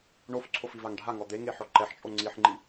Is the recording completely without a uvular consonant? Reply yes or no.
yes